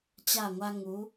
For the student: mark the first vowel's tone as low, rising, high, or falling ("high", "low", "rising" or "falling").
falling